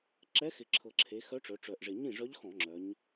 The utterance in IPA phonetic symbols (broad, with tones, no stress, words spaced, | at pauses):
ǁɛ˧˥xɪ˨˩ǁʰɤ˨˩ǁʰe˩˧ xœ˧˥ʈ͡ʂœ˩˧ʈ͡ʂœ˨˩ʔʐɪ˨˩ ɲĩ˥˩ʐœ˧˥ʎ xɔ̃˧˩˧ŋ͡ǁœ˩˧ɲ